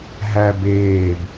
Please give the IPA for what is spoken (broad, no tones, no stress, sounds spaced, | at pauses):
ɦ æ b eː b